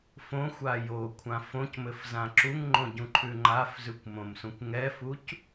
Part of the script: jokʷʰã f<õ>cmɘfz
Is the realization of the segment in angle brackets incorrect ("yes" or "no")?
no